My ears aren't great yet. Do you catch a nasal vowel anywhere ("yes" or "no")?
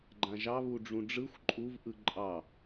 yes